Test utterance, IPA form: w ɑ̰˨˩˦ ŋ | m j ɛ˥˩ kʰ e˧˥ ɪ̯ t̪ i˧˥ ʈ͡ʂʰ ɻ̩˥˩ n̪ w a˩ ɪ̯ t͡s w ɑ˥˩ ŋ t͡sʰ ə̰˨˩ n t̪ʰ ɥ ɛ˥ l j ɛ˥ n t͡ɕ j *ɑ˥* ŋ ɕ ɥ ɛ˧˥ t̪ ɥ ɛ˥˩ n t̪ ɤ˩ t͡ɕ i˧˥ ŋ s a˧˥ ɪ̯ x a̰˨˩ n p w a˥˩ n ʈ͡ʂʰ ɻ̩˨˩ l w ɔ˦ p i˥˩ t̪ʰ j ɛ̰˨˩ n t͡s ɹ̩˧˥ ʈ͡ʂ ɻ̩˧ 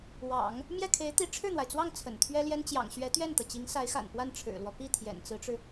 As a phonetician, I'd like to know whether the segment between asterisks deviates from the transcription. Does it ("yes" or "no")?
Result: yes